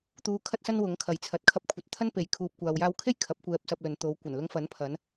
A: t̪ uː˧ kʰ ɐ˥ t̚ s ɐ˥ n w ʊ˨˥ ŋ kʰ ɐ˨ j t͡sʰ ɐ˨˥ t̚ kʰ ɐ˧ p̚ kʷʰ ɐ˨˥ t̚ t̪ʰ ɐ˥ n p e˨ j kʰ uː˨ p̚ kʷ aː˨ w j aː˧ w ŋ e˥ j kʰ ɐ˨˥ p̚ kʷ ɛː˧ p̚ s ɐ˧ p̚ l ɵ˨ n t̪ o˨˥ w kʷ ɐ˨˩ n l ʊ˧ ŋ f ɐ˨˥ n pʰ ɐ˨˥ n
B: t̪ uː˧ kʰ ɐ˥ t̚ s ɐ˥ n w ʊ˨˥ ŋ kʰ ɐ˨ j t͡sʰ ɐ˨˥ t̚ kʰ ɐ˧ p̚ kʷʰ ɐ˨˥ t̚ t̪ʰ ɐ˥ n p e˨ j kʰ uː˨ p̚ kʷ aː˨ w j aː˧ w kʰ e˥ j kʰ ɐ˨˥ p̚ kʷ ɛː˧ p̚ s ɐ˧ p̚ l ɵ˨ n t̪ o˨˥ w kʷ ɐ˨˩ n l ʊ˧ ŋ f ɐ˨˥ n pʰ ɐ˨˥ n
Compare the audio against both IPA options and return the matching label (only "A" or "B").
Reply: B